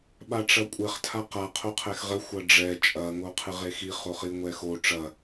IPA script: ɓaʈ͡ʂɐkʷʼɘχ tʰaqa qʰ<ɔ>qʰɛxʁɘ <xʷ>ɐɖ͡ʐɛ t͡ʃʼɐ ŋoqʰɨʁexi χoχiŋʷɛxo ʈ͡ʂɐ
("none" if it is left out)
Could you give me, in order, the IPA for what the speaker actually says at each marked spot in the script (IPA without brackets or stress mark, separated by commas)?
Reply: o, xʷ